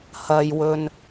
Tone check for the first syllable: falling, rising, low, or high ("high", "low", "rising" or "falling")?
low